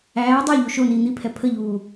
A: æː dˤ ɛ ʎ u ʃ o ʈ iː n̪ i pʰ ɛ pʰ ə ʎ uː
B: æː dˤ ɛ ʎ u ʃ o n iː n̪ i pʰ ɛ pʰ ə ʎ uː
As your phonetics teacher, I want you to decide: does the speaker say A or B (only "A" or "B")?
B